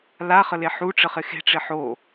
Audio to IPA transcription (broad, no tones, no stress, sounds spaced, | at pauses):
l a χ ə l e ħ u ʈ͡ʂ ə χ ɪ x e̤ ʈ͡ʂ ɪ ħ o